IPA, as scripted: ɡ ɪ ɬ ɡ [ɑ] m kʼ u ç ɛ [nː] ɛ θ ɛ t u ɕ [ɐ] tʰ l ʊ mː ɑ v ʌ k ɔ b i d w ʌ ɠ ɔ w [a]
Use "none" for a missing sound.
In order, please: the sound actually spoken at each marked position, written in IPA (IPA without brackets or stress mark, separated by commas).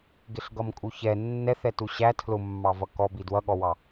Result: ʌ, nː, æ, ɑ